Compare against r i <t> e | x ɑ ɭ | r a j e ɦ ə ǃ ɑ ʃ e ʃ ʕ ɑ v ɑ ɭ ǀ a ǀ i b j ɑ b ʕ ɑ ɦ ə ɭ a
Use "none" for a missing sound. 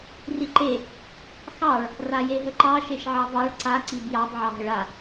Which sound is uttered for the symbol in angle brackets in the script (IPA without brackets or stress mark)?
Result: ǃ